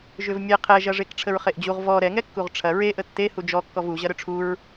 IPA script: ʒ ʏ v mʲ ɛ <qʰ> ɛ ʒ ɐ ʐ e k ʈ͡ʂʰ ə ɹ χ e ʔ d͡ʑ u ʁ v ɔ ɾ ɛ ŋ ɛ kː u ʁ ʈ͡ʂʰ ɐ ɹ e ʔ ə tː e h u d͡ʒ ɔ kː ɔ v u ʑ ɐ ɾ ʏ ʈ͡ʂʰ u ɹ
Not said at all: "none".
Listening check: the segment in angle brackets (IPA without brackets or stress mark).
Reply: qʰ